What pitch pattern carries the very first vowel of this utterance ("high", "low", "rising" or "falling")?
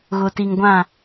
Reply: low